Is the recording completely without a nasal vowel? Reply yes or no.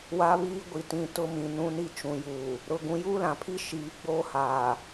no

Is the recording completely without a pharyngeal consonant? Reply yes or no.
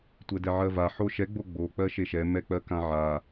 no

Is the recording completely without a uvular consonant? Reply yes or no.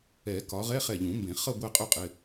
no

